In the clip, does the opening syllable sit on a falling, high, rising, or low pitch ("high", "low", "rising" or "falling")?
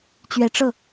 low